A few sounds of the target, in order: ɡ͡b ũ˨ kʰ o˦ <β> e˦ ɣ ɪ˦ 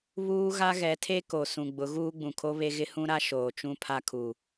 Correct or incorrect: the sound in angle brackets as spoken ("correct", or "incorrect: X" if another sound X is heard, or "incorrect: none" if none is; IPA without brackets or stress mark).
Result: correct